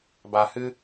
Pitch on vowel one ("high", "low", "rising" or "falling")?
low